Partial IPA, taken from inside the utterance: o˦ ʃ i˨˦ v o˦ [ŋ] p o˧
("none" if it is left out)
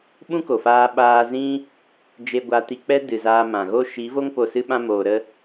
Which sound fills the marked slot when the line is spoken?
ŋ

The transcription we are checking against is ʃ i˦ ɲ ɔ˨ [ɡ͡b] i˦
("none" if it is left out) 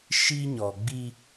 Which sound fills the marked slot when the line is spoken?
ɡ͡b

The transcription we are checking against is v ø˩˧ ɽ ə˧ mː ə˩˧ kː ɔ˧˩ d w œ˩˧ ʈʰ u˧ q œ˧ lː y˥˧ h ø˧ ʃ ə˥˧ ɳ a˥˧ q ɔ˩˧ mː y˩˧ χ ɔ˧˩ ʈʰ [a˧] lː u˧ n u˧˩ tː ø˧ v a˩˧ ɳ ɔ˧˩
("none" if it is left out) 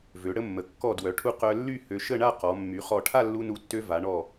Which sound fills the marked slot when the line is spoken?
a˥˧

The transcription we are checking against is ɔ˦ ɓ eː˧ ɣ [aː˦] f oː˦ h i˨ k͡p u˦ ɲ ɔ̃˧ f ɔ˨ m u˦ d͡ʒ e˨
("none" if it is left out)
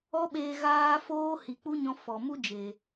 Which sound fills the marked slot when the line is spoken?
aː˦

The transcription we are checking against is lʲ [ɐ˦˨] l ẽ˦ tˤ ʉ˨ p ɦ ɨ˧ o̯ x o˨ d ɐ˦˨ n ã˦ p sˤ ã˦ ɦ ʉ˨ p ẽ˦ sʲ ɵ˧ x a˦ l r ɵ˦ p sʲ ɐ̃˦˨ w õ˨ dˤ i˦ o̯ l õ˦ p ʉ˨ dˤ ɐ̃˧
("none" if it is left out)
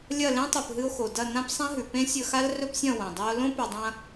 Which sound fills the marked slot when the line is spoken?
ɐ˦˨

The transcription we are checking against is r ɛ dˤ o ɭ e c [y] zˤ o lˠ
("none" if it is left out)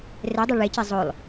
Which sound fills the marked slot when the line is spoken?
e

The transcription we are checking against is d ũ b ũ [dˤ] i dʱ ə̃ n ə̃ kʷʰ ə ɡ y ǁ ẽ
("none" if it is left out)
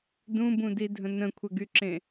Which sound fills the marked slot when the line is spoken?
d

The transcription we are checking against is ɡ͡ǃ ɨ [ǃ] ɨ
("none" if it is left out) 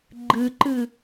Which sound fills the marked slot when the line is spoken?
ǃ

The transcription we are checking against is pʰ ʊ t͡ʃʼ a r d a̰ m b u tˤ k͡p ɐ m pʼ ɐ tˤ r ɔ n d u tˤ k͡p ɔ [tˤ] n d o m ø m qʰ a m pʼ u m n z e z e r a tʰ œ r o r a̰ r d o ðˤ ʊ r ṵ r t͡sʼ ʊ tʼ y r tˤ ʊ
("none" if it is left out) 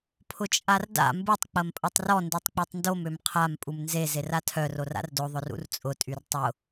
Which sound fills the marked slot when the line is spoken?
tˤ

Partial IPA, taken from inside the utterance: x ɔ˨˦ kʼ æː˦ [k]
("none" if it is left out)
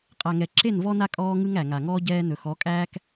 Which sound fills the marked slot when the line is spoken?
k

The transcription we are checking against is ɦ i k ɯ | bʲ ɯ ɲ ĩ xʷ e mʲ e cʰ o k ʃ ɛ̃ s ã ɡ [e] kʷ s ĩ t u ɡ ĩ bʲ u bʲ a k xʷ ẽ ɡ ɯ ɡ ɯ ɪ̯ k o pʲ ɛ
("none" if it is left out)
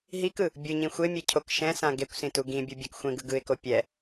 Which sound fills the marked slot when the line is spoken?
e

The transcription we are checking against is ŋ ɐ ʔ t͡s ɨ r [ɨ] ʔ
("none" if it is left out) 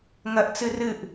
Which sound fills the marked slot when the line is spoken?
ɨ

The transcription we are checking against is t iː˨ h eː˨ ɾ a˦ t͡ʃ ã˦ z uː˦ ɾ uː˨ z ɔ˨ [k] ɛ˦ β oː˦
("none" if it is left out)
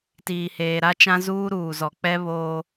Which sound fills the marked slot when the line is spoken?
k͡p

